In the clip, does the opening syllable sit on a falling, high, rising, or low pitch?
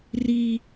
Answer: high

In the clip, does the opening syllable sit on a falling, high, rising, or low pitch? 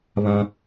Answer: high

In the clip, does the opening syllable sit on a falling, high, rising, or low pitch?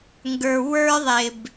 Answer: low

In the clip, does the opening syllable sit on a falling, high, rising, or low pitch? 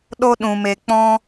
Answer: high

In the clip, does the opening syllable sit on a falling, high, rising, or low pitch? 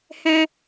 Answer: high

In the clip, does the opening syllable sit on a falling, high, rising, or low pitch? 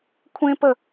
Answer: high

